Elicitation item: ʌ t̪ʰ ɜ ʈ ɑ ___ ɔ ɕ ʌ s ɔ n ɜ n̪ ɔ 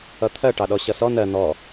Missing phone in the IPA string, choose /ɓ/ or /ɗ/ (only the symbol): ɗ